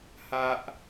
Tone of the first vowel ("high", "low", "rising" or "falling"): high